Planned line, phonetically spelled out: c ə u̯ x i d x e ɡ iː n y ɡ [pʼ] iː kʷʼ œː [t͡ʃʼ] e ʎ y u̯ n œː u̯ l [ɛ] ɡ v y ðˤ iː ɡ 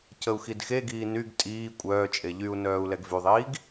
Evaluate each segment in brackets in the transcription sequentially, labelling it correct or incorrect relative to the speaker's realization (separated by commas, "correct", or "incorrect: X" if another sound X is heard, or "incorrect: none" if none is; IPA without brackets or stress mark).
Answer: incorrect: tʼ, correct, correct